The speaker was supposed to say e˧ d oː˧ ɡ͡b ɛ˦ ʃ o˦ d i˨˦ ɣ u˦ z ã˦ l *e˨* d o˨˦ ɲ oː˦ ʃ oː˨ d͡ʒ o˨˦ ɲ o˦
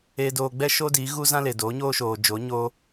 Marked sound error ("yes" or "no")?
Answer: no